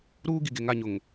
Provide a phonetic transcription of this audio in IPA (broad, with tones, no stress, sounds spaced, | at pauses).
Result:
ɾ uː˦ ɡ i˨ ɡ e˨ ŋ a˦˨ ɲ ʊ˨ ŋ